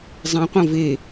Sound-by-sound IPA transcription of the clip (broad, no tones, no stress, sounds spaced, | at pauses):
zˤ ẽ qʷ ɐ̃ v e